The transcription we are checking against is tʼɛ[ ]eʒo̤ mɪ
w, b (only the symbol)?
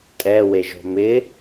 w